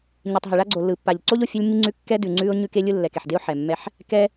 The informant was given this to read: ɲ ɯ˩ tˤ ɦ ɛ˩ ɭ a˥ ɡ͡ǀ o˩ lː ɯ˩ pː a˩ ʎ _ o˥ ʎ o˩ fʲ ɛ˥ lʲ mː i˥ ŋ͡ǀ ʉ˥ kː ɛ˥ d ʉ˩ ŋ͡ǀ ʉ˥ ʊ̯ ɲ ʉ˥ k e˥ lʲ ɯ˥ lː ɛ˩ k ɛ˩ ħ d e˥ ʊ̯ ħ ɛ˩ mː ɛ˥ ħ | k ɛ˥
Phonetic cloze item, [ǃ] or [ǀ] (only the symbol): ǀ